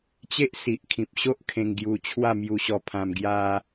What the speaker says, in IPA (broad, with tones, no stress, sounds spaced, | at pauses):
t͡ɕ e˦ ʔ s i˨ ʔ kʰ ĩ˨ p̚ ɕ o˦ ʔ kʰ ẽ˧ ŋ ɡ j u˧ t͡ɕʰ w a˥˧ m j u˧ ɕ ɔ˧ pʰ ã˧ m ɡ j a˦